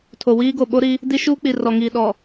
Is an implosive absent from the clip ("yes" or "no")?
no